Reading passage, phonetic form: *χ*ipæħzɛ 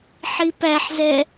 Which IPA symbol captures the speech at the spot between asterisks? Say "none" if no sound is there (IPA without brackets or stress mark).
ħ